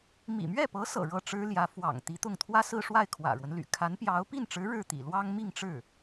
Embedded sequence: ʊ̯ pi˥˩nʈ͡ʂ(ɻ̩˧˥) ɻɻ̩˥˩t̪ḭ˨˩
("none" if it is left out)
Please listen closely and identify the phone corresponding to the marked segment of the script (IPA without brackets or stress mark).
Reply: ɻ̩˧˥